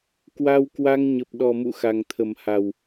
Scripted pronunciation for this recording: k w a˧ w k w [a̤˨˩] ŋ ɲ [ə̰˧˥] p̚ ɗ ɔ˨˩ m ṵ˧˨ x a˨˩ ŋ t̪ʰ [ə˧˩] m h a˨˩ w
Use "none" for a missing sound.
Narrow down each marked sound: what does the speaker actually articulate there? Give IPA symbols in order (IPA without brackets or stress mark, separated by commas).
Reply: a˧, ə˨˩, ə˨˩